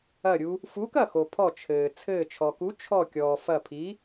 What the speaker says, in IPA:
ɐ˧˩ ɾʲ u˧ | f u˨˥ k ɐ˥˩ x o˩ pʰ ɔ˧˩ t͡ʃʰ ɘː˩ t͡sʰ ɘː˧˩ t͡ʃʰ ɔ˩ k u˨˥ t͡ʃʰ ɔ˧˩ kʲ ɔː˩ f ɐ˧˩ pʰ i˨˥

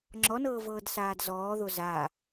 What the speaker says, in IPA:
ŋ͡ǁ ɔ n ɤː v ɤː d s aː d z ɔː ð o z a

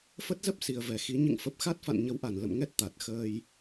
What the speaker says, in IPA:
f ə˦˥ t̚ z ə˦˥ p̚ s i˨˩ ə̯ v ɛ˧˩ x i˨˦ ɲ ɨ̰˧˨ ŋ f ə˨˩ p̚ x a˦˥ t̚ f a̰˧˨ n ɲ ə˨˦ w ʔ a˧˩ n l ə̰˧˨ m ŋ ɛ˦˥ t̚ t̪ a˨˩ t̚ x əː˧ j

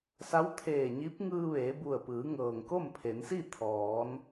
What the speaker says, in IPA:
s a˧˥ w t̪ʰ eː˧˩ ɲ i˧˥ p̚ ŋ ɯː˧ ʋ eː˩˧ b u˧˩ ə̯ p ɯː˩˧ ŋ ɤː˩ ŋ k o˥˨ m pʰ e˩˧ n s i˥˨ t̪ʰ ɔː˩˧ n

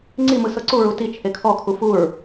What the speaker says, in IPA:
ŋ͡ǀ i m ɯ s ɤ ǀ u ɹ u t i t͡ʃʰ e kʰ ɔ kʰ u f u ɹ

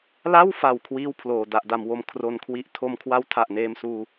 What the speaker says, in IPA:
l a˥˩ w f a˨˩ w kʰ w iː˥˩ w pʰ l oː˨˩ d a˨˩ ʔ d a˨˩ m w o˧ m kʰ r o˧ n kʰ w i˥˩ ʔ tʰ o˧ m kʰ w a˦˥ w tʰ a˨˩ ʔ n eː˧ m s uː˧

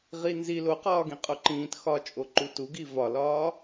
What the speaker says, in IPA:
ʁ i n z i l o q ɒː ɡ ĩ qʼ o ǃ ĩː t x ɒ t͡ʃʼ o ǃ u t u ɡ i v ɒ l ɒː

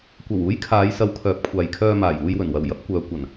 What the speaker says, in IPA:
kʷ ɐ˨˩ w uː˨˥ j kʰ aː˨˧ j s ɐ˨˧ w kʰ œː˨˥ p̚ kʷʰ aː˨ j kʰ œː˧ m aː˨˩ j uː˧ j w ɵ˨˩ n w ɐ˨˩ w j ɐ˨˥ p̚ kʷ œː˨ kʷ ɐ˨˩ n

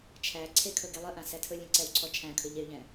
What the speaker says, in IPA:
t͡ʃʰ æ ǀʰ e kʰ ɵ ɡ e lˠ ə ʔ ã s æ tʰ ɵ lʲ ẽ ǀ ɛ w ǀʰ ɔ t͡ʃʰ æ̃ kʰ ɵ ʎ e y̯ ʎ ɛ̃

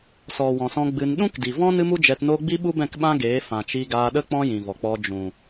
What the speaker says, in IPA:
s ɔ˨ w ɔ̃˨ s ɔ̃˧ ɡ͡b ɨ˧ n ɗ ũ˦ k d i˨ v ɔ̃˦ n ɨ˦ m u˦ d͡ʒ ɛ˧ t n oː˦ ɡ͡b i˦ ɓ u˦ b ɛ̃˦˨ k ɓ ã˦ ɡ eː˨˦ f ã˨ t͡ʃ i˧ ɡ aː˧ ɗ ə˦ k͡p ɔ̃˦ j ĩ˨ v ɔ˨ k͡p ɔ˧ d͡ʒ ũ˨

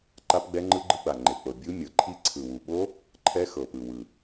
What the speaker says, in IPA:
ǃ a˦˥ p ɡ͡b ɛ˦˥ ŋ͡ǃ ɯ˦˥ ɡ͡ǃ ɯ˦˥ ɡ͡b a˨˩ ŋ͡ǃ e˨˩ k͡p ɤ˨˩ bʲ u˦˥ mʲ ɤ˨˩ ǃʰ i˦˥ ǀʰ ɯ˨˩ w u˨˩ ɓ o˦˥ | ǃʰ ɛ˦˥ x ɤ˨˩ p ɯ˨˩ w ɯ˨˩

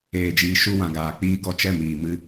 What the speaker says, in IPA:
eː˨ d͡ʒ iː˨ ʃ u˦ w ã˨ ɡ aː˨ k͡p iː˦ ɡ ɔ˧ t͡ʃ ɛ˦˨ m iː˨ m ɨ˦˨

